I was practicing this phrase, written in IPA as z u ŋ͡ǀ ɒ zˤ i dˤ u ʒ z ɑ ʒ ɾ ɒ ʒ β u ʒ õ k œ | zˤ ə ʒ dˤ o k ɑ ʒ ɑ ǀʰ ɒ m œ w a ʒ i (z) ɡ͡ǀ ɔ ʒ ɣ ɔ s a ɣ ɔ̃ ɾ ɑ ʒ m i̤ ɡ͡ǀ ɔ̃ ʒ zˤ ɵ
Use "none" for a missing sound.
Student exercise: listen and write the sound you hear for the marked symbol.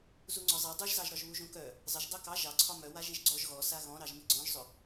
ʒ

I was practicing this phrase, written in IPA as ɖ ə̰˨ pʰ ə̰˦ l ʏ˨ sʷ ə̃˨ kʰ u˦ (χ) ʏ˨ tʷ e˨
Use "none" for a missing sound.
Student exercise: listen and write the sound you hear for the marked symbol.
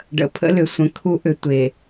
ʔ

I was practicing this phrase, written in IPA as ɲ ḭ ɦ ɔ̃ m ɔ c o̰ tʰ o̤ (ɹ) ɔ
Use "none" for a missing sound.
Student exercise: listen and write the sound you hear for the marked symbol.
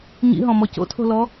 l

